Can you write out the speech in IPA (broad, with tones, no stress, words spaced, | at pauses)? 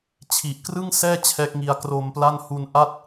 t͡ɕʰi˨˩ʔkrɯ˥˩ŋ sɛː˥˩ t͡ɕʰɛː˦˥k̚ŋi˧a̯ kro˧mpla˥˩n hu˧nʔa˥˩t̚